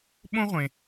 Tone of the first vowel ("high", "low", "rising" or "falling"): high